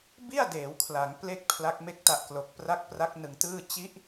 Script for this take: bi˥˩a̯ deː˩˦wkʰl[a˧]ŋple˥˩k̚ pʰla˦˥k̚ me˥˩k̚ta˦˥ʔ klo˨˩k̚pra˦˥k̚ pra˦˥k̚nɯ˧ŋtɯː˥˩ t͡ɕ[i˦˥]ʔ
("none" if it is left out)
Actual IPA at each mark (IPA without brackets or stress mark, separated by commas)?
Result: a˩˦, i˦˥